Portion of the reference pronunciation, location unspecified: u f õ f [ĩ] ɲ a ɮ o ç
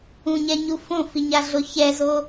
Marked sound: incorrect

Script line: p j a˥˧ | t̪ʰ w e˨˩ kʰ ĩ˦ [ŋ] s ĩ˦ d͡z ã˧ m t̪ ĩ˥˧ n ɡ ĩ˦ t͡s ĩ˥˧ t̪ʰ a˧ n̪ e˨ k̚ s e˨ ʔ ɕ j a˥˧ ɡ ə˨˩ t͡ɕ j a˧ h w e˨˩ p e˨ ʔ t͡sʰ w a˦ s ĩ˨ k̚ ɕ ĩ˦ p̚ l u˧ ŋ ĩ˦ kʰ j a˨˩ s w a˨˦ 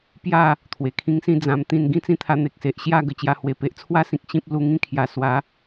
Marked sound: correct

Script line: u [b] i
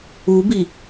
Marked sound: correct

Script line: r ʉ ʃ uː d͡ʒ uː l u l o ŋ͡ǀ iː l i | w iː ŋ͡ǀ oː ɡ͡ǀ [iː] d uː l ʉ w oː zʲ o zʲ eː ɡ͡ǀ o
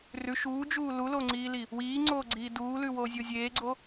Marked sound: correct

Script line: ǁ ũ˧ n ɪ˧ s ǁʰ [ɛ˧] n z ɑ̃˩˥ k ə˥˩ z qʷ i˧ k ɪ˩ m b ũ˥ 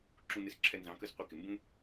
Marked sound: correct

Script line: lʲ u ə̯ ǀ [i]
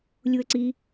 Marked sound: correct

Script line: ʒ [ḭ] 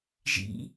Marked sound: correct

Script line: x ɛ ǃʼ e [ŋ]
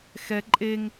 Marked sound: correct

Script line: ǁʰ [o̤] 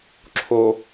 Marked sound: incorrect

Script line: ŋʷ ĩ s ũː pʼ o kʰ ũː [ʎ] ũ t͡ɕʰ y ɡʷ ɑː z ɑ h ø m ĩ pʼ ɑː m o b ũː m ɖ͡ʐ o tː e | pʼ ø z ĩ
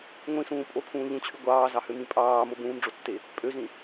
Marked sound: correct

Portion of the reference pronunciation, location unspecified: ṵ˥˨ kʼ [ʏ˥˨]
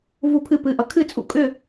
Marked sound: correct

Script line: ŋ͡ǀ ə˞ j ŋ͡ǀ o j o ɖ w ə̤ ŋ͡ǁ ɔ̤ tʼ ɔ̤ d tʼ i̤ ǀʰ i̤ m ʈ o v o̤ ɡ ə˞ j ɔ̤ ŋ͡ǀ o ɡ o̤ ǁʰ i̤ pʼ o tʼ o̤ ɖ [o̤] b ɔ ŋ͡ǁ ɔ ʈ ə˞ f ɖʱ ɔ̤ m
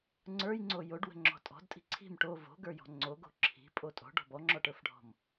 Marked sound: incorrect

